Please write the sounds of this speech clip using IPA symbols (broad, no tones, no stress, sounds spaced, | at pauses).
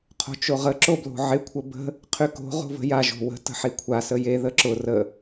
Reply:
qʰ o̤ t͡ʃ o ʁ ə ǁ o b l o̤ ʕ ɪ kʷʰ ə b ə̤ | qʰ y k o̤ ʁ o̤ v ə̤ j a ʒ o̤ w ə̤ t ə̤ ħ i kʷʰ a s ə j e ð ə ǁ ʊ r ə